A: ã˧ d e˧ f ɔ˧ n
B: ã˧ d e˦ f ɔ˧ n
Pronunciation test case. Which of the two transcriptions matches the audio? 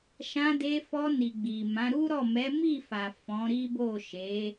A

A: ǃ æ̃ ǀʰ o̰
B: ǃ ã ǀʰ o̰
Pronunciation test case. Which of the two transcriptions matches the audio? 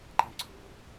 B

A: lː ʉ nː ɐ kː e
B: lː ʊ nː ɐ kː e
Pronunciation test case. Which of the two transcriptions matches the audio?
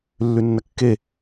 A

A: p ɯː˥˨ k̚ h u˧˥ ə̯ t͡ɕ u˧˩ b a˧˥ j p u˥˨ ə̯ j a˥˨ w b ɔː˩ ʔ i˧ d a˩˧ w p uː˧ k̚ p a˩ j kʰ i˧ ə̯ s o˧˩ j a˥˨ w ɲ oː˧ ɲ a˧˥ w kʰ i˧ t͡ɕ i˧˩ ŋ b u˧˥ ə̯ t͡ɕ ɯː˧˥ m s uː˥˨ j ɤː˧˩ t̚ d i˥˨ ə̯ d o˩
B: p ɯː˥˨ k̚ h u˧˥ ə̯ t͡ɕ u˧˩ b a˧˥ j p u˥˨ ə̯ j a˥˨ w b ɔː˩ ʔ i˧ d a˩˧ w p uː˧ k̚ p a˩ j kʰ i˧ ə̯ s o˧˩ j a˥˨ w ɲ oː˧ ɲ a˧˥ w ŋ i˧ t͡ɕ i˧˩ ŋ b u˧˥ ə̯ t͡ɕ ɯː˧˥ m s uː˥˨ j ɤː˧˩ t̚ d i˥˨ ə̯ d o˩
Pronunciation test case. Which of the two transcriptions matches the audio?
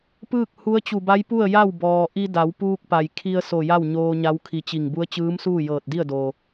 A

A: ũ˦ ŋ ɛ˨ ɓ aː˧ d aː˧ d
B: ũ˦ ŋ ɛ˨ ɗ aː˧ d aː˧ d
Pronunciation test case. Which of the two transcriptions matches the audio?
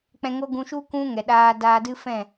B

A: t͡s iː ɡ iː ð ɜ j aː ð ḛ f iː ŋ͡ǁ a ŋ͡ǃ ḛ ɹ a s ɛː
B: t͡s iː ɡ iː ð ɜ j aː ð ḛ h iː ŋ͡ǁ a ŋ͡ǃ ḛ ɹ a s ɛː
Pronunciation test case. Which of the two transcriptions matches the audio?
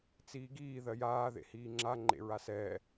B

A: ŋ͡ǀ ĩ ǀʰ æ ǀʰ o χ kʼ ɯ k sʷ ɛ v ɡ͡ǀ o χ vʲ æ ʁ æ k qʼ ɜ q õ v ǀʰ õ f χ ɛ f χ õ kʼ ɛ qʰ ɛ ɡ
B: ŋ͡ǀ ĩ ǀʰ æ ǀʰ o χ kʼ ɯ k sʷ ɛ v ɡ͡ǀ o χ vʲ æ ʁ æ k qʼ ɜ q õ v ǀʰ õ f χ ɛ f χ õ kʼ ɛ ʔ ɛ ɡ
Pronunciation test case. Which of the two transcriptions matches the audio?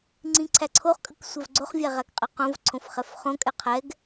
A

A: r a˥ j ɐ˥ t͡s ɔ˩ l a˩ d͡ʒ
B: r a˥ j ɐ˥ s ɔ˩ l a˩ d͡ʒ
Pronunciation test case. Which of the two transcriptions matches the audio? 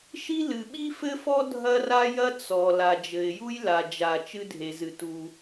A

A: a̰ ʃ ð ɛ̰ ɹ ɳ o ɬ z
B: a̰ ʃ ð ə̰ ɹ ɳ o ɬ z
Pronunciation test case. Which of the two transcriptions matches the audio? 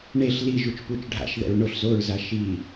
A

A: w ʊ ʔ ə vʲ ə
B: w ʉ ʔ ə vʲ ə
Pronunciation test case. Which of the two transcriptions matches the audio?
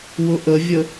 A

